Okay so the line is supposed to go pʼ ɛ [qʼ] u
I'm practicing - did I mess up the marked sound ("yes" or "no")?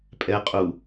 no